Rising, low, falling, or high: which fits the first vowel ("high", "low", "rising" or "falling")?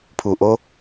low